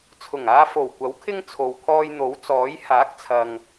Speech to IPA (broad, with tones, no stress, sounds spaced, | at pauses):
t͡sʰ ʊ˨˩ ŋ aː˧ f o˨˩ w kʷ ɐ˨˥ w kʰ ɪ˥ ŋ t͡sʰ o˨ w kʰ ɔː˧ j n̪ o˨˥ w t͡s ɔː˨˥ j h aː˨˥ k̚ t͡sʰ ɐ˨ ŋ